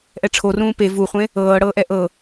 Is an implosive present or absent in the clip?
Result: absent